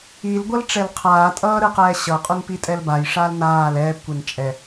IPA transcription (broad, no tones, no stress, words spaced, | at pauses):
ilɡʷʌl ʈ͡ʂɛlqʰaːtʼʌː ɾɯqɛːɕʌqʼun pitʼɛlbajʂal naːl ɛːpkʷen t͡ʃʼɛ